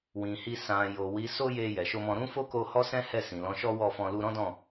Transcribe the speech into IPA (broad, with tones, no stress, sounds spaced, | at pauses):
w ĩ˨ h i˧ s ã˨ j o˨ w i˨˦ s o˦ j e˧ j ɛ˨ ʃ o˧ m ɔ̃˧ ɾ ũ˦ f o˦ k o˧ h ɔ˦ s ɛ̃˦ h ɛ˦˨ s ĩ˨ l ɔ̃˨˦ ʃ ɔ˦ w ɔ˦˨ f ɔ̃˧ l u˧ ɾ ɔ̃˦ d ɔ̃˦˨